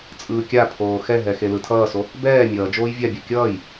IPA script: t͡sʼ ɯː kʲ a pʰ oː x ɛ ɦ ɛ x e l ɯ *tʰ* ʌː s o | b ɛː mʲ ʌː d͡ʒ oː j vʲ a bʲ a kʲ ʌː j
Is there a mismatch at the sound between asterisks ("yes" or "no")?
no